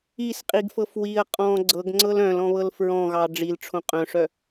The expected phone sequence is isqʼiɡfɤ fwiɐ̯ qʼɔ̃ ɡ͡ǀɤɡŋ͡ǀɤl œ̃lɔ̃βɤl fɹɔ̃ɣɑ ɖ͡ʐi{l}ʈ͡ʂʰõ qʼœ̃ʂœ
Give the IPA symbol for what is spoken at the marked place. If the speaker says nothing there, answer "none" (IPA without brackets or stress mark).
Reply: l